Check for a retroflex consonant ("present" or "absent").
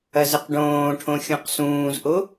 present